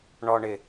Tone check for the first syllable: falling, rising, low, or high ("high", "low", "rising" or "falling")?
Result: low